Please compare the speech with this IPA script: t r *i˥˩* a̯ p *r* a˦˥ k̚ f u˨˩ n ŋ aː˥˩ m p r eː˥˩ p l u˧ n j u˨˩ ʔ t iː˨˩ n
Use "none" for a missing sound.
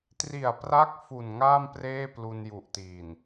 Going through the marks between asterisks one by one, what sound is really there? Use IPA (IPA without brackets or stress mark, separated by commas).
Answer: i˨˩, r